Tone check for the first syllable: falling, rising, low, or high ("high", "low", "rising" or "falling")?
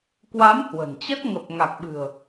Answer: rising